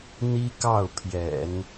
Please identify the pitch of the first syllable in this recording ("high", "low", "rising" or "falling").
high